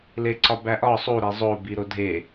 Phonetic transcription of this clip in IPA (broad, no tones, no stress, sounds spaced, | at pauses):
l e ǀ ɒ b æ ʔ ɒ sˤ u ɾ e zˤ o b i ɾ o dʱ e